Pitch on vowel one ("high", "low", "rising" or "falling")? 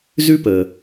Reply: high